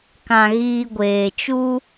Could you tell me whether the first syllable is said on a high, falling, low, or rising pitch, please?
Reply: low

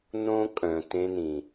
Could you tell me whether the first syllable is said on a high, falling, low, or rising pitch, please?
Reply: high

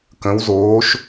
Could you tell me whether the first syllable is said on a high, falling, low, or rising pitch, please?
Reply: rising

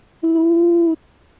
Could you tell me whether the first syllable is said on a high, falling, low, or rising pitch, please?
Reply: falling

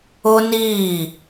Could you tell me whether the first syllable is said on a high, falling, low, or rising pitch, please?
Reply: high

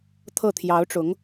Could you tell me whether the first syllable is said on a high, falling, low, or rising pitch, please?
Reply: falling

